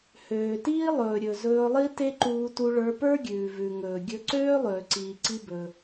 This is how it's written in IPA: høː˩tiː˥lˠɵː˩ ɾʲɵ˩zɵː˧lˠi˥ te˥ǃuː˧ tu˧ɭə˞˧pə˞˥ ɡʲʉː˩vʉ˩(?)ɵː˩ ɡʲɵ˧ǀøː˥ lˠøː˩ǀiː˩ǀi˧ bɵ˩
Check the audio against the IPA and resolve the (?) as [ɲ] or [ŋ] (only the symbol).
ŋ